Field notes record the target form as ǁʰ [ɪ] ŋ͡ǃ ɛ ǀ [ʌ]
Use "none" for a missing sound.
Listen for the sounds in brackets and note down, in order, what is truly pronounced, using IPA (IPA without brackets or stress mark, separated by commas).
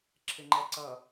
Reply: ɪ, ʌ